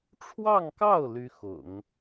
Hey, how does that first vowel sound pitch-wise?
falling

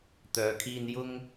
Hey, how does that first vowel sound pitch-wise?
low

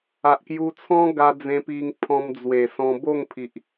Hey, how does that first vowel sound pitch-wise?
low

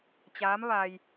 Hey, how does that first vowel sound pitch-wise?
rising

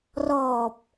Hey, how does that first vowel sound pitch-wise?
low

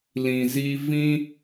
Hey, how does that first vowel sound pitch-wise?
low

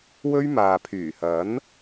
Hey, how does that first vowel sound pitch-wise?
high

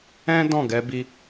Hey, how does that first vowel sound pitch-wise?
high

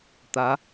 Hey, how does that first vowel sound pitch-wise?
rising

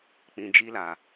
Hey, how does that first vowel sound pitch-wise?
low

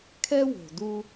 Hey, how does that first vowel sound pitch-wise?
high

